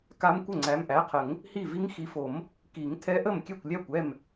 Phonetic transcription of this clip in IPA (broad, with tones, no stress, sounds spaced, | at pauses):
k a˦˥ m kʷ ə˥˩ ŋ͡ǀ æ˨˦ m ʔ æ˩˧˩ qʰ ə˨˩˦ ŋ | h i˥˩ v i˦˥ ŋ x i˨˦ f o˨˩˦ m | k i˨˩˦ ŋ tʰ ɛ˦˥ ʔ ə˥˩ m kʲ ɛ˥˩ kʷ lʲ æ˥˩ kʷ ɛ˥˩ m